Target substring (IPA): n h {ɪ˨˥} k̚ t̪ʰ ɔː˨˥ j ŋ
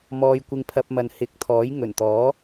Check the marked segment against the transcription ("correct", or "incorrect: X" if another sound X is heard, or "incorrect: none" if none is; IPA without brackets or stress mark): correct